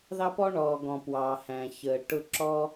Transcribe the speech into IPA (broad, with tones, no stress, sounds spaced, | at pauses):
ð ɑ˥ p ɔ˥ ɳ ɔː˩ ɡ ɔ̃˩ p w ɑː˩ h æ̃˩ ç əː˩ ʈ ʊ˧ ǁ ɔ˥